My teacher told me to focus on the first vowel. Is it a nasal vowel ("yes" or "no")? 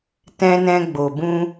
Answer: yes